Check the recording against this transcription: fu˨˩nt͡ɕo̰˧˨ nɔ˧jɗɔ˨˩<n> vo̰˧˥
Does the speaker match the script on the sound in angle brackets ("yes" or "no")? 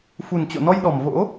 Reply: no